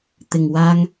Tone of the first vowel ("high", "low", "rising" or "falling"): low